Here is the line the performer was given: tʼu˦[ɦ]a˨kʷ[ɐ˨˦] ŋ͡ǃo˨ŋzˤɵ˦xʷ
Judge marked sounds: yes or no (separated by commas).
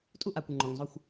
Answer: no, no